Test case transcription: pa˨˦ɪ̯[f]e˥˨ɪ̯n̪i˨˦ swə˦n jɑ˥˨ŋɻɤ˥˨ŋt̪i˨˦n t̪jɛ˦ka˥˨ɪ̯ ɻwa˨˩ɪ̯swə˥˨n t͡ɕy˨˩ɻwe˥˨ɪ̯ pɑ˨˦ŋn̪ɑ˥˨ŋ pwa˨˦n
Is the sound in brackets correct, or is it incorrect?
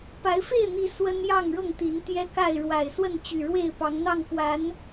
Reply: correct